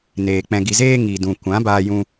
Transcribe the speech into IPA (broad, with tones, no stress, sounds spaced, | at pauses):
n eː˨ k͡p ɛ̃˧ ɡ i˧ z eː˦ ŋ i˨ d ũ˨ kʷ ã˨˦ b aː˧ j ũ˧